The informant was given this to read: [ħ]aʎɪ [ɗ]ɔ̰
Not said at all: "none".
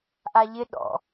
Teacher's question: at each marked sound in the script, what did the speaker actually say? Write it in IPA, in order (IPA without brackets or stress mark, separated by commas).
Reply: ʔ, ɗ